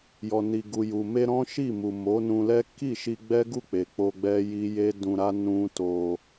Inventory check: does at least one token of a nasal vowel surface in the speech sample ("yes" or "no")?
yes